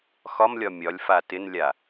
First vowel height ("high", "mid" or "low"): low